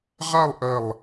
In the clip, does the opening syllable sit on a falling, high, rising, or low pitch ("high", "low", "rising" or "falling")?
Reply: falling